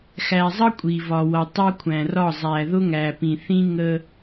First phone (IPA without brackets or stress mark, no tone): x